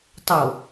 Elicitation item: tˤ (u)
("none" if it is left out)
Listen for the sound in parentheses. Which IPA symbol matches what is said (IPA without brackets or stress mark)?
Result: o